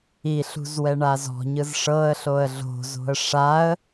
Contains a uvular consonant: no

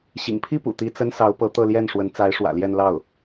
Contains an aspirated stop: yes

